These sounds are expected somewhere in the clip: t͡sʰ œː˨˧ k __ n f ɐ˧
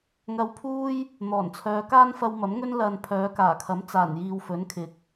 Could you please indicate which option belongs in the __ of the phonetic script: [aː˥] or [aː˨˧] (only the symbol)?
aː˥